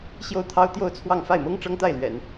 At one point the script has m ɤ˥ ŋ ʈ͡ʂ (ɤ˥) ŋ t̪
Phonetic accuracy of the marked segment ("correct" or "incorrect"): correct